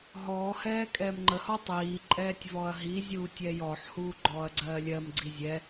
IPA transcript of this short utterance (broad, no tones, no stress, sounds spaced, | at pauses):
ɦ ɔː h ɛː kʼ ɛː m ŋ͡ǃ ə h ɔ tˤ iː ǃʼ ɛː tʲ v ɔ ɐ̯ ɦ i zʲ uː tʲ ɛː j ɔ ħ h uː ɡ͡ǃ ɔː ɐ̯ ɡ͡ǀ ɜː lʲ ɜ m ɡ͡ǀ i zʲ ɛ